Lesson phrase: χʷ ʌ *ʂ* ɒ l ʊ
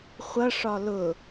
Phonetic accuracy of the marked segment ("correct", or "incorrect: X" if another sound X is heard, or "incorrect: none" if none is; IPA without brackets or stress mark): correct